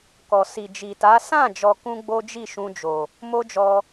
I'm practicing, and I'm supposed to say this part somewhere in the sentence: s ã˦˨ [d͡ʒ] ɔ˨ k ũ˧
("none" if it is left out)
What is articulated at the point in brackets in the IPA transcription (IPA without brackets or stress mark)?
d͡ʒ